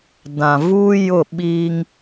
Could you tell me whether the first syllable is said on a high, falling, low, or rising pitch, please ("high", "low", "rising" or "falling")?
low